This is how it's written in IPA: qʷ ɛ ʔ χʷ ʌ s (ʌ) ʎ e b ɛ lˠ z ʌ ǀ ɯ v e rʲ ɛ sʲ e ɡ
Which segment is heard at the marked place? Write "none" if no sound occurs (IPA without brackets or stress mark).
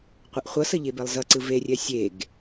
ʌ